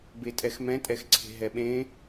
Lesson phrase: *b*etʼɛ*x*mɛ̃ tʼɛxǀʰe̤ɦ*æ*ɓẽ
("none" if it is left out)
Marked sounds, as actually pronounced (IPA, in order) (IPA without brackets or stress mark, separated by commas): b, x, ɛ